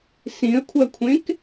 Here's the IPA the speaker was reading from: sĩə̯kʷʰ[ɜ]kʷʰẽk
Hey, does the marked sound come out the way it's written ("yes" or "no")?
yes